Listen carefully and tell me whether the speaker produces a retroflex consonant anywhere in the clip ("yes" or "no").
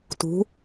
no